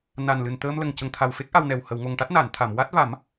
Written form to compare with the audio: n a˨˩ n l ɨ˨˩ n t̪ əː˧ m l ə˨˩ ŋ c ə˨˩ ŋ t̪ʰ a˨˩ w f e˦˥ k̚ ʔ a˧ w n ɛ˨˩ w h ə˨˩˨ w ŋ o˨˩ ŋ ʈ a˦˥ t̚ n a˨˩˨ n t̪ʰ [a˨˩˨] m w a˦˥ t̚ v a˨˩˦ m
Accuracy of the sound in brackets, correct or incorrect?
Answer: correct